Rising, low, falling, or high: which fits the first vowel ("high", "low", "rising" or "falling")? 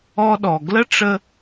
high